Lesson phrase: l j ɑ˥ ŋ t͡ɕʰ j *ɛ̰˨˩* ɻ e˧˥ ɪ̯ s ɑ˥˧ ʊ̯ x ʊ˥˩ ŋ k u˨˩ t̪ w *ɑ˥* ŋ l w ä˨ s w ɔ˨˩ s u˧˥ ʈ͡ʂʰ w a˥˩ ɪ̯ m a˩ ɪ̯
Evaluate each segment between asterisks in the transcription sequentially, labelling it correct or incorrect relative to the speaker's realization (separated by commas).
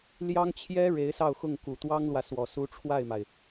incorrect, correct